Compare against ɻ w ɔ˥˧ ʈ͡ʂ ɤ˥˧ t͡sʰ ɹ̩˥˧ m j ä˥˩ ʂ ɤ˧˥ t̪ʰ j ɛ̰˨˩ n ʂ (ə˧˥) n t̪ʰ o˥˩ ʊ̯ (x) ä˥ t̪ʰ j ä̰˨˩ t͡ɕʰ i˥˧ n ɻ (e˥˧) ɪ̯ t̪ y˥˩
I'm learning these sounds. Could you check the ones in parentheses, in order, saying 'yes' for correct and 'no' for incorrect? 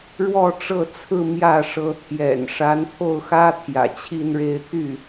no, yes, yes

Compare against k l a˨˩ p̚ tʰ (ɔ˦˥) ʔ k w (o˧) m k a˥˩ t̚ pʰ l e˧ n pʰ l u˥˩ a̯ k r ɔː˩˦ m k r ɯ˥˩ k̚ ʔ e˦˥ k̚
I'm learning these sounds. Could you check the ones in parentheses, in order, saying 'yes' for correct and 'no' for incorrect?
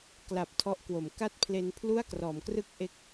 yes, no

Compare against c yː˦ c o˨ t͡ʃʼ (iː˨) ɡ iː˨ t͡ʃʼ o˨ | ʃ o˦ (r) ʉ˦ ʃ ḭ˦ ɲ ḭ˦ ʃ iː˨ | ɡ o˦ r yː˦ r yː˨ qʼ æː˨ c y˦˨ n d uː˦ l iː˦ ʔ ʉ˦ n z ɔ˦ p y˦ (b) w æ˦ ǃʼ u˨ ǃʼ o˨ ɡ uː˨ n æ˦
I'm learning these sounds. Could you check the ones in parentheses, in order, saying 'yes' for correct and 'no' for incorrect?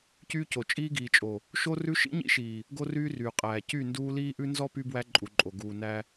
no, yes, yes

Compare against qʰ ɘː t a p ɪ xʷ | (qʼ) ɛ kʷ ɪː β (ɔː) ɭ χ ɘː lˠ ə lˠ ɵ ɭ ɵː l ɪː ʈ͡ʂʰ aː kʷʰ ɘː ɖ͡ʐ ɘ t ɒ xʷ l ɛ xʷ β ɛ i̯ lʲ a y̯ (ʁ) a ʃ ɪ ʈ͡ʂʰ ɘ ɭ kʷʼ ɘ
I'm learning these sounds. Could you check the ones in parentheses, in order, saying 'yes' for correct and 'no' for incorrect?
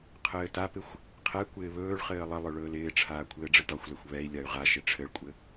no, no, yes

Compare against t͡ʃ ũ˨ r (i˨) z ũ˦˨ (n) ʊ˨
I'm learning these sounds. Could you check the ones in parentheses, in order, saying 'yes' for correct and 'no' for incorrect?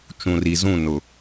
yes, yes

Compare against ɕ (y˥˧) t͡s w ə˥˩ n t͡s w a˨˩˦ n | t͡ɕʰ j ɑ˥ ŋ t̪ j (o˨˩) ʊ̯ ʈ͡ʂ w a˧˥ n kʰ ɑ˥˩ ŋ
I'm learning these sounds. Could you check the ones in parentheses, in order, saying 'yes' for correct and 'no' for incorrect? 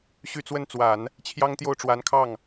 yes, no

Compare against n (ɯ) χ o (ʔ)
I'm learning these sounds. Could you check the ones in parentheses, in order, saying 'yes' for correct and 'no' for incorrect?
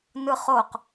yes, no

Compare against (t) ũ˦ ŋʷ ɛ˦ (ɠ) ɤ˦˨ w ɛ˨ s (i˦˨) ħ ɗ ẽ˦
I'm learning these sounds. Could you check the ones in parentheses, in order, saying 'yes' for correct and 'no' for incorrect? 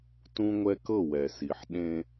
yes, no, no

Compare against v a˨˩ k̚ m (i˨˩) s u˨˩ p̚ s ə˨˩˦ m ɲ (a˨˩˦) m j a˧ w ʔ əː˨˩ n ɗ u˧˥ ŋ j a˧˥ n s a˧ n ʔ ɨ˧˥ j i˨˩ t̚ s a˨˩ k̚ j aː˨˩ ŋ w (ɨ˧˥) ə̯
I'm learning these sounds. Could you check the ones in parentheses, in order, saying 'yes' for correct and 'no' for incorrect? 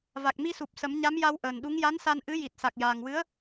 no, no, yes

